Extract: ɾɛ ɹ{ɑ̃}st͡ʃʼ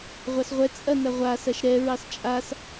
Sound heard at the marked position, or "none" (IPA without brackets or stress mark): ɑ